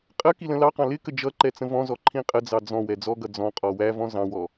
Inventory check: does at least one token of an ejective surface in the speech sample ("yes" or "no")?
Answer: yes